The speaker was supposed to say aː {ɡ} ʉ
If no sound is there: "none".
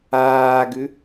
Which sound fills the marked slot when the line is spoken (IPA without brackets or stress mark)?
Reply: ɡ